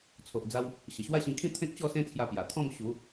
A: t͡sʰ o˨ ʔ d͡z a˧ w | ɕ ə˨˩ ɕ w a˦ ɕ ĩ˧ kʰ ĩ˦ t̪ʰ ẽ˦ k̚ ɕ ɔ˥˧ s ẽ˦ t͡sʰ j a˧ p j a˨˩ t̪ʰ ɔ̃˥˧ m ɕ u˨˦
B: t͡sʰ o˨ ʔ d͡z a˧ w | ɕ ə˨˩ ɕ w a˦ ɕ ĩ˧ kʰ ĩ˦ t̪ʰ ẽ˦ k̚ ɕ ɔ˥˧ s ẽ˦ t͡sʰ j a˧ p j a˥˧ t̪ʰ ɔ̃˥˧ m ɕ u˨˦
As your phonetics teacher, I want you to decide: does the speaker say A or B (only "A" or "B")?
A